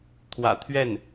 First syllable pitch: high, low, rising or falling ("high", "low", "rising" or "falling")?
low